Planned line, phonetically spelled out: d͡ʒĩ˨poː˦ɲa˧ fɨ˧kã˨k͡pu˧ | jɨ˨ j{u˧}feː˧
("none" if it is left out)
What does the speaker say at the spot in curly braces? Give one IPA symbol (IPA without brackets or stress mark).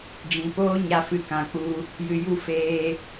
u˧